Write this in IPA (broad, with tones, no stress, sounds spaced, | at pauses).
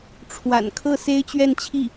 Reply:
ʈ͡ʂʰ w a̰˨˩ n kʰ ɤ˥˩ s e˥ ɪ̯ t͡ɕ ɥ ɛ˥˧ n t͡ɕʰ i˥˩